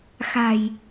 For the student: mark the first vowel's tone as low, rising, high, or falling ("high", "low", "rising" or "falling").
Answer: low